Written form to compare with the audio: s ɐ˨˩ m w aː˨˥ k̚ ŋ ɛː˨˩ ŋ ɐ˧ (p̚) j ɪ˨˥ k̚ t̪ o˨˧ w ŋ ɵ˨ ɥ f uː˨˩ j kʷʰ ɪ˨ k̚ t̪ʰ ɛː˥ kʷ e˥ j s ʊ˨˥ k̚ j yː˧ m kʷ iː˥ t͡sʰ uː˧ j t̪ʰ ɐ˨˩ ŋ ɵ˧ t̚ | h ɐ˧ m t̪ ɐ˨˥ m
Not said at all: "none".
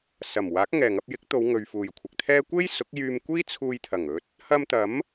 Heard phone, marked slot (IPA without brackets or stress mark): p̚